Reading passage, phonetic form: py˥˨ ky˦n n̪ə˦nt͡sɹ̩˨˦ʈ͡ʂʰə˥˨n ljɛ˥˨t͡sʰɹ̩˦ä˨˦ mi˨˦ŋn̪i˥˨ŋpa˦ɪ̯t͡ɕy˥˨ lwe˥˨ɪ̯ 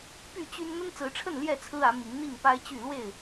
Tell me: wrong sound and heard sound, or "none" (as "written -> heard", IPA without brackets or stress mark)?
k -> t͡ɕ